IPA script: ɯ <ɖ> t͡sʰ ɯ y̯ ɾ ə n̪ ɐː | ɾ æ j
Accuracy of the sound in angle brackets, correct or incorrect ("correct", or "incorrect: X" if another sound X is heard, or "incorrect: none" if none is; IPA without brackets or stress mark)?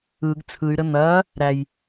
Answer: incorrect: ɡ